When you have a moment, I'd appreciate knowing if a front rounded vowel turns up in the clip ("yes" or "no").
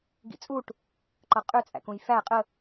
yes